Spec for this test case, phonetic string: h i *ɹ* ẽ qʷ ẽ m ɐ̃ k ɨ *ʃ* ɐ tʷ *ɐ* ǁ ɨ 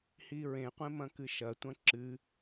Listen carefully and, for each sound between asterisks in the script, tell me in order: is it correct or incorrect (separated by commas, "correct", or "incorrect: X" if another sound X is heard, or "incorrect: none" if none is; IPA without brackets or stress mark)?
correct, correct, incorrect: ɐ̃